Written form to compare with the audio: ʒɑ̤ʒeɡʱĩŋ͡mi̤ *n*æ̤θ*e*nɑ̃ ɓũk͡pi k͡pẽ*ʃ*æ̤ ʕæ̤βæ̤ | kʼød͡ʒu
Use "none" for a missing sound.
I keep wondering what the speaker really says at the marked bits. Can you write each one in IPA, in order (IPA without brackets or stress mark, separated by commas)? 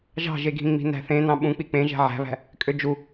n, ẽ, ʒ